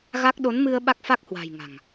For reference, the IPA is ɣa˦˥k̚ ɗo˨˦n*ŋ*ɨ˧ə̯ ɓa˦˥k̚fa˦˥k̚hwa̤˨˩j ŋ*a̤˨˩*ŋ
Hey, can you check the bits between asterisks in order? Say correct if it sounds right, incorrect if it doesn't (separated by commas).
incorrect, correct